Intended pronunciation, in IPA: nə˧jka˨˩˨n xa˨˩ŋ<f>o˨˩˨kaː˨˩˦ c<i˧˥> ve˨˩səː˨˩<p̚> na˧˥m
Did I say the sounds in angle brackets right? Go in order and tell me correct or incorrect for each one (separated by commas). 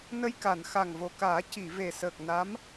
incorrect, incorrect, incorrect